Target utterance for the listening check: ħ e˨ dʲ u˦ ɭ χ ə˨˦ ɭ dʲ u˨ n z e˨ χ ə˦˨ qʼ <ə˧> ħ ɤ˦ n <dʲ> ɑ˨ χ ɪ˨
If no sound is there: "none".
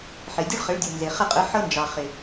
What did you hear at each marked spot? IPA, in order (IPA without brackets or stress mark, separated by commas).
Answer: ə˨˦, d͡ʒ